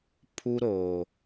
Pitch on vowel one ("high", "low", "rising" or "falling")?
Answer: high